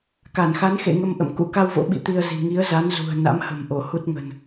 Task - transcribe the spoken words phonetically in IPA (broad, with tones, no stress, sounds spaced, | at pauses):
k a˧˩ n x a˨˦ n x ḛ˧˨ ŋ ə˧ m ʔ ə̰˧˨ m k ṵ˧˥ k a˧ w v o̰˧˥ ɓ ḭ˧˨ t̪ i˧ ə̯ z i̤˨˩ ŋ i˨˦ ə̯ z a˨˦ n z ṳ˨˩ ə̯ n a̰˧˥ m h ə̤˨˩ m ʔ o˧˩ h u˦˥ t̚ ŋ ə̤˨˩ n